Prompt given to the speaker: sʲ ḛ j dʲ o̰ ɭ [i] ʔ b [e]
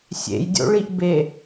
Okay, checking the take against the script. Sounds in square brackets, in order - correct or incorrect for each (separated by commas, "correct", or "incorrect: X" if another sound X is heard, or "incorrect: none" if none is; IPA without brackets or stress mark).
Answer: correct, correct